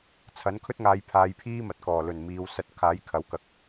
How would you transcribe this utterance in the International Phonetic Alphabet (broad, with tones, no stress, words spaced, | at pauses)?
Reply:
t͡sʰɐ˨˥nkʰɵ˥t̚ŋaː˨˧j pʰaː˨˧jpʰiː˥mɐ˨t̚kɔː˨˩ lɵ˨˩n miː˨˧w sɐ˨t̚ kʰaː˨˥jkʰɐ˨˥wkɐ˨k̚